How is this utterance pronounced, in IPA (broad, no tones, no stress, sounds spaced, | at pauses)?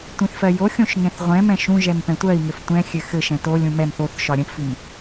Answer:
tʷ ĩ θ f ɜ j o xʲ õ ʃ ŋ ɛ̃ θ ʁʷ ɛ̃ m ɛ̃ ʃ ũ ʒ ɛ m p ɛ̃ tʷ ɜ i̯ ŋ ɘ f tʷ ɛ̃ xʲ ɘ x ɘ ʃ ɛ̃ t o lʲ ũ m ɛ m θ o θ ʃ ɒ ɾʲ ə̃ p f i m